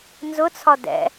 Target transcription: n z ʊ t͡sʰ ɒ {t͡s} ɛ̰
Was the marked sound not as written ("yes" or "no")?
yes